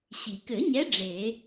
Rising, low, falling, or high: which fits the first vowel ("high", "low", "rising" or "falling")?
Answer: low